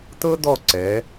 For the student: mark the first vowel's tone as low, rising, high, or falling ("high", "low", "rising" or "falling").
high